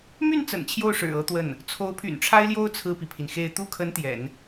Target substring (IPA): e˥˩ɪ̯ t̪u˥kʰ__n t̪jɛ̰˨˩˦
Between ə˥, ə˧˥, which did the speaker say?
ə˧˥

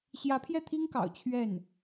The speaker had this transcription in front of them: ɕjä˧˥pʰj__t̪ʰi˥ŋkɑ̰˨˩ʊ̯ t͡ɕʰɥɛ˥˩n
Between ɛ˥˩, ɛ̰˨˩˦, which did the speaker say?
ɛ˥˩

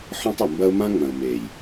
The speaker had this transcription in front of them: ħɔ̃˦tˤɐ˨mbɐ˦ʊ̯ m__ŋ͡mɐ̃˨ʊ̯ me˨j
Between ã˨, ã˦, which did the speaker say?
ã˦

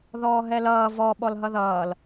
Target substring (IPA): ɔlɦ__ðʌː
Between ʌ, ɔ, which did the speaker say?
ʌ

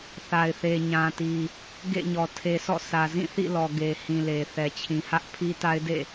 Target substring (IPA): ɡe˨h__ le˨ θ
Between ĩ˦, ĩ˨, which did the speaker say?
ĩ˨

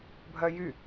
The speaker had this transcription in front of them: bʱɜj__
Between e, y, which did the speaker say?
y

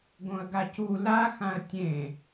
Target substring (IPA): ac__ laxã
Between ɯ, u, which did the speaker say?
u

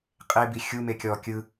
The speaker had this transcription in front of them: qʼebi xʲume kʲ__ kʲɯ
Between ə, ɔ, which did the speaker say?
ɔ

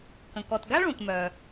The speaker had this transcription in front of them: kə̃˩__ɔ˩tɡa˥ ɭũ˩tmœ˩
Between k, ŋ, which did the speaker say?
k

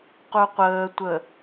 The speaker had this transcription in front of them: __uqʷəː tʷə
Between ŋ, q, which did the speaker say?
q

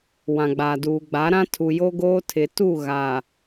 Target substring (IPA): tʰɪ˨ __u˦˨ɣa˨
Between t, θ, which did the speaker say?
t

